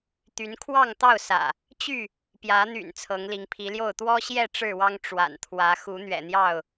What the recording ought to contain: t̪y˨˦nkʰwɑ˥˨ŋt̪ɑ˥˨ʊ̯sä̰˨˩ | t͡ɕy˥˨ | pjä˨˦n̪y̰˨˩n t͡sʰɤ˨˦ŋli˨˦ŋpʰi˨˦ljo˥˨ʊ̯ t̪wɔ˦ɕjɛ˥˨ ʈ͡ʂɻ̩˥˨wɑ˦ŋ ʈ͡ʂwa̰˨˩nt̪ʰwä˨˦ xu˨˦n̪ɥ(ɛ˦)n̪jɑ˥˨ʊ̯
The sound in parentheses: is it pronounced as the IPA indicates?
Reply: no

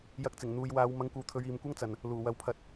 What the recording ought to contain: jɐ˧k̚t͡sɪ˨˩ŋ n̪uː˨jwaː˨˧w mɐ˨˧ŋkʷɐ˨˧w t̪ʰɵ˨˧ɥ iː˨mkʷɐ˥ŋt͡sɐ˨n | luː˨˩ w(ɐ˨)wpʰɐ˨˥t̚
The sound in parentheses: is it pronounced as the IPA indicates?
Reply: yes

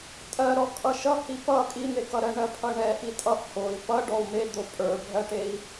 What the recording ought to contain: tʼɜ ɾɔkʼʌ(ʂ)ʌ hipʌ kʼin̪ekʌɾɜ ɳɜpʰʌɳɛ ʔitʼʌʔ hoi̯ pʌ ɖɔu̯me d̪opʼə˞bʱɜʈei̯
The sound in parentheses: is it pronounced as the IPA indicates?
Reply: no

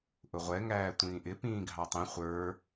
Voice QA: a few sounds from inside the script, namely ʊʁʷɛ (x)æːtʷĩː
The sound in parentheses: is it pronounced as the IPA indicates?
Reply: no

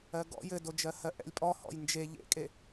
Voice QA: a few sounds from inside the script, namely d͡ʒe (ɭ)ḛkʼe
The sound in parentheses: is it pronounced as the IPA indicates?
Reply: no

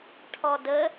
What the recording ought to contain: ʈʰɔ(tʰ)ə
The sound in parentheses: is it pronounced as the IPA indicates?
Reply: no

